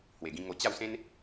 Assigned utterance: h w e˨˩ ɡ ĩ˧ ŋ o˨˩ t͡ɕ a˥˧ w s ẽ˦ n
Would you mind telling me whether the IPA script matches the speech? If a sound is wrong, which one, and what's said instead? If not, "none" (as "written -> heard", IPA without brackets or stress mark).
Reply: none